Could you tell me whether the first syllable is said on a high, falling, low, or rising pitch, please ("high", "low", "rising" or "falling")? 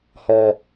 low